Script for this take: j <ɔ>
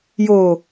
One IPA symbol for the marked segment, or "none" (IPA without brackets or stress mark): o